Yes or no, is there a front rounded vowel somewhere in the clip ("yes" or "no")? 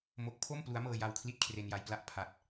no